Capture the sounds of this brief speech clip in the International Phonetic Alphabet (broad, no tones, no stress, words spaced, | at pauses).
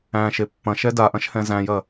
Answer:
æ̃ ʃepːɐ̃ ʃɛdaʔɐ̃ʃhɛ̃ zæ̃jɐ